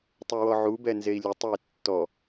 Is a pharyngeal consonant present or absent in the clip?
present